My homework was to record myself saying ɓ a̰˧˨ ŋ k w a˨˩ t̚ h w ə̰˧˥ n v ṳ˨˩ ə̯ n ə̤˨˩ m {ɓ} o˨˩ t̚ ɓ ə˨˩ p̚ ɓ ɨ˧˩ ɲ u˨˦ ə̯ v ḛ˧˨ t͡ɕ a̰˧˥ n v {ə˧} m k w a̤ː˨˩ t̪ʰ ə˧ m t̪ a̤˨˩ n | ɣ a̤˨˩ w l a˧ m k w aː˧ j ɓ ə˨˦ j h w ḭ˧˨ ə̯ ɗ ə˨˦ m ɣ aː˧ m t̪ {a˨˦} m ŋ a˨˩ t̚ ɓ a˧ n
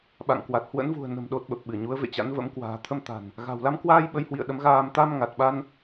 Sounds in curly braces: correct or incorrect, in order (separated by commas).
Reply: incorrect, incorrect, incorrect